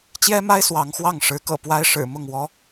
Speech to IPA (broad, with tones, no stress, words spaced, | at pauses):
t͡ɕjɛ˥ma˥ɪ̯ swɑ˧˥ŋxwɑ˥˩ŋ ʂɻ̩˧˥kɤ̰˨˩ pwa˥ɪ̯ ʂɻ̩˨˩mʊ˥˩ŋwɔ˥